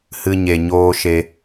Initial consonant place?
glottal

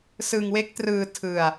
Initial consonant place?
alveolar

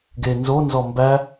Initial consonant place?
velar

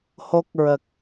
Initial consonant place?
glottal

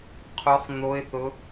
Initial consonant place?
uvular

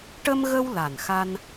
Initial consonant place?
retroflex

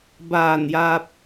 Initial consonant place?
labial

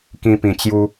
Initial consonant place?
velar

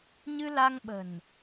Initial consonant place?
palatal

